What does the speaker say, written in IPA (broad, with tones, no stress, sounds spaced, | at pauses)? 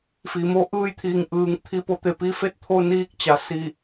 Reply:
f iː˩ m o˥˨ ʔ ɯː˥˨ j t̪ʰ iː˧˩ ŋ ʔ ɯː˩˧ ŋ t̪ʰ i˧˩ p o˧ t̪ e˩ p i˧ f e˥˨ t̚ t̪ʰ o˧ n iː˧ k̚ t͡ɕ a˩˧ s i˧˩